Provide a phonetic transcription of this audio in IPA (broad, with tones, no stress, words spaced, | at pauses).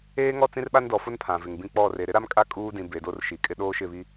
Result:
eː˦ŋɔ˦˨t͡sĩ˦rɓa˦n dɔ˨fʊ˦n pʰã˨vɪ˨ŋbĩ˦ k͡pɔ˦˨re˨ ɾɪ˦ɾa˦mkʼa˦ kʼuː˦dĩ˨ be˨do˦rʃi˨kʼɪ˦ ɗoː˦ʃɪ˦˨βi˦